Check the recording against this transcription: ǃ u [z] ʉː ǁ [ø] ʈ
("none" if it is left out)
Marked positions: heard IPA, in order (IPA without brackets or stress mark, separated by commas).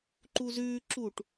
z, u